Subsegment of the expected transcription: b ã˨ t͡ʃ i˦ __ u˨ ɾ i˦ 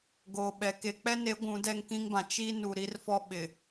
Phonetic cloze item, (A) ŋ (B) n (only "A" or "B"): B